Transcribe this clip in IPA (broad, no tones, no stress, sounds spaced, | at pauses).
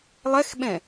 lˠ ɛ x ɓ ɛ̃